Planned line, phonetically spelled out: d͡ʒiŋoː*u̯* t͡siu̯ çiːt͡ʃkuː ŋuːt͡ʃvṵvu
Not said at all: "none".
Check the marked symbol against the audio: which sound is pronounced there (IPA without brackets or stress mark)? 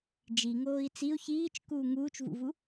i̯